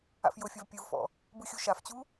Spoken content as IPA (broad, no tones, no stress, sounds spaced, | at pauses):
a̰ f j ʊ fʲ ɐ v pʲ ɯ v f ɔ̰ | b ɯ xʲ u ʃ a f t͡ɕ u